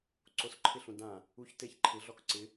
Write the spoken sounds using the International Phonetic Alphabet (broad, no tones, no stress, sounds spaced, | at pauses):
ǀ o s ǃʰ ɪ ɬ ũ d ã | u ç t e ç ǃʰ ɪ ɮ ɔ k ǀ ɪ